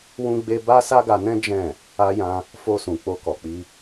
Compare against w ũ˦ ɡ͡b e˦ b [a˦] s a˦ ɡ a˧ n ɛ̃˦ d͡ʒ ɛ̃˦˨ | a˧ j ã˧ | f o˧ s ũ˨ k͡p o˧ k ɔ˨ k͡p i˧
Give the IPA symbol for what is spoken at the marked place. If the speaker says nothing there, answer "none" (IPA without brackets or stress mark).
a˦